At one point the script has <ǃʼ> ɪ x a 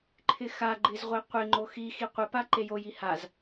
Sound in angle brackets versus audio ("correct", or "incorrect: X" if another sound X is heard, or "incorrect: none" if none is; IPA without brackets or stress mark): incorrect: ǃʰ